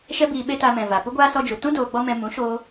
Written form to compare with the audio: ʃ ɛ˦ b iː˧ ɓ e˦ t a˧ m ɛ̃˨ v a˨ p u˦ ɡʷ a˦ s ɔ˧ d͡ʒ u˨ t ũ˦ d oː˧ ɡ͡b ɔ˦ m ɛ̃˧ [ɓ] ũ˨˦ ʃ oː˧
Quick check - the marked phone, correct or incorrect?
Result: incorrect